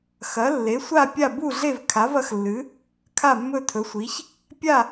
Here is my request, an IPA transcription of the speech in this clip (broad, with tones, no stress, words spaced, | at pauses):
xɐ˩˥lːe˩˥sʷa˥˨ pʲa˥˨ bu˥˨ɮe˥˨v kʰa˩˥vɐ˩˥xlːɨ˩˥ | kʰa˥˨mːɵ˥˨tʰɵ˩˥sʷi˩˥ç | pʲa˥˨